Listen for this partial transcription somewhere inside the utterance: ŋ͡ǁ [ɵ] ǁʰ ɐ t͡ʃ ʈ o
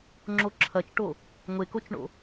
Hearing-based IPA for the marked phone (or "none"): o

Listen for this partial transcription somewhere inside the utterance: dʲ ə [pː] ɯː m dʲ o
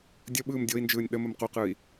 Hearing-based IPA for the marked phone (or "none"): ɓ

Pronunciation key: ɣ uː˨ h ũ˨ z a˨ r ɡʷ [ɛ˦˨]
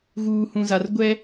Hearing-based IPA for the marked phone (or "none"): ɛ˦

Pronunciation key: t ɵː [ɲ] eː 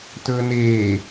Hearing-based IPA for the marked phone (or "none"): n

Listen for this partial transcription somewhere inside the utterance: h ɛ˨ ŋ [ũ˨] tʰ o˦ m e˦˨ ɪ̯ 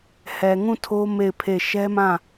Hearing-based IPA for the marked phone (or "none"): ũ˦˨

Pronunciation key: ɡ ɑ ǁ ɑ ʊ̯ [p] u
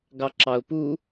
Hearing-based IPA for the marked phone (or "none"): p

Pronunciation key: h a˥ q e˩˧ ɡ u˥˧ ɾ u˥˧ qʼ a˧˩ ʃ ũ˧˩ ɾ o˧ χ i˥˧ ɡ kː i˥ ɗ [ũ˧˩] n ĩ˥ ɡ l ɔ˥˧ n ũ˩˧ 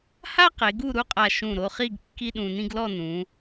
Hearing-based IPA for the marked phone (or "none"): ũ˧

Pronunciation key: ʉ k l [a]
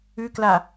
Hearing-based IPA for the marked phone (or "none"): a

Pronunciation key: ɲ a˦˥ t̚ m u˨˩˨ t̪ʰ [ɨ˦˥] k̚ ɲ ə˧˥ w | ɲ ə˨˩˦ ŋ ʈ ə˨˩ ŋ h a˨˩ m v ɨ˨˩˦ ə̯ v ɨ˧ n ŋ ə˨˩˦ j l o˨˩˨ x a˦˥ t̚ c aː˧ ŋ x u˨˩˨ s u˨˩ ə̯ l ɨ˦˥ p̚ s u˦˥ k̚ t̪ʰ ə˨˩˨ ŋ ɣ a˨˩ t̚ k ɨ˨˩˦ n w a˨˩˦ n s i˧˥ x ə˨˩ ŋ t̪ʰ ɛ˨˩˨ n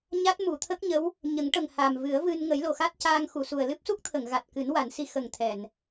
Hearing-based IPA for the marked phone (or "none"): ə˦˥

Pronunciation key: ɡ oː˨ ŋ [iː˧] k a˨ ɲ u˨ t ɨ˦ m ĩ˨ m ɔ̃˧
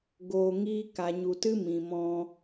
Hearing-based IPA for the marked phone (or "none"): iː˧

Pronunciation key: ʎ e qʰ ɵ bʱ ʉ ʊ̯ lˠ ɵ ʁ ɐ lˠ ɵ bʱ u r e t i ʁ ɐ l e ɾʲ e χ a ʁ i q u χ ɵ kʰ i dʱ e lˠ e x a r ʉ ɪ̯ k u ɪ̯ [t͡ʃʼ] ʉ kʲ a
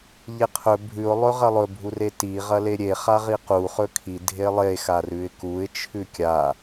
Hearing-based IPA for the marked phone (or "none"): t͡ʃʰ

